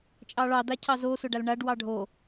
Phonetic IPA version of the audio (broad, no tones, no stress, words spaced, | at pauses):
t͡ʃʼɑɭɑda cʰɑzosʊ ɖalɳaɖwɑ ɖʱo